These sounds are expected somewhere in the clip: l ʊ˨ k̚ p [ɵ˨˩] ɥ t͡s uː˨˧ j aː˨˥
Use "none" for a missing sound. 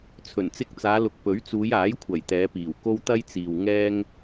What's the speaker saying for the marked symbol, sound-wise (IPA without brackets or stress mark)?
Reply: ɵ˨˥